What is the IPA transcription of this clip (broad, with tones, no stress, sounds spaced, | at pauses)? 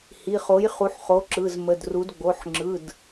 h i˩˧˩ χ o˩˥ j χ u˩˥ ħ χ o˩˥ ǁ ɯ˩˧˩ z m ə˩˧˩ d r u˩˥ d ɡ͡b o˩˧˩ ħ ŋ͡ǁ ɯ˩˧˩ d